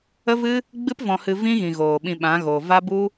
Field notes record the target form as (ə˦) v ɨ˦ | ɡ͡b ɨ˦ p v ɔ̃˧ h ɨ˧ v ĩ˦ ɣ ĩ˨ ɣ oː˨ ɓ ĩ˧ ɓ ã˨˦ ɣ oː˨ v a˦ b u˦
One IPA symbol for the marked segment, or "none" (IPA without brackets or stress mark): ə˦